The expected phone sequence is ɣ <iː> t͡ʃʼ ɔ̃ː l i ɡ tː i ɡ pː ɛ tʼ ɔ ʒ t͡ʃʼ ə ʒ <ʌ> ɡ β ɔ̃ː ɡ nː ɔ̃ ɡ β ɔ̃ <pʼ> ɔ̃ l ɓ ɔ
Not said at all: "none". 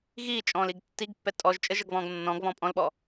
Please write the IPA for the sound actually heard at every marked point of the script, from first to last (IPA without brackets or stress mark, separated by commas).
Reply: iː, ʌ, pʼ